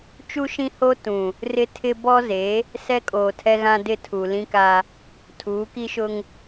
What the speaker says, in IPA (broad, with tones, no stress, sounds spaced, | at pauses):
t͡ʃ u˦ ʃ ĩ˦ h o˦ t ũ˨ | r ɪ˦ tʰ ɪ˦ b ɔ˦ z e˨˦ | s ɛ˦ kʼ oː˨ tʰ ɛ˦ ɣ ã˦ d ɪ˦˨ tʰ u˨ l ĩ˦ k a˦ | tʰ uː˨˦ k i˦ ʃ ʊ˦ ŋ